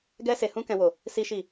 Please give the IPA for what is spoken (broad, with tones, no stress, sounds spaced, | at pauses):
ɡ ɛ˦ s e˧ h ũ˦ k ɛ̃˦ w o˦˨ | s i˦ ʃ i˦˨